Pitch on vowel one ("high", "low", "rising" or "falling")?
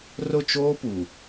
falling